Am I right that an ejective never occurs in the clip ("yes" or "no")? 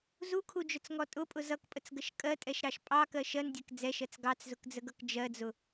no